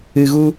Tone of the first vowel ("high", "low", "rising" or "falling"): low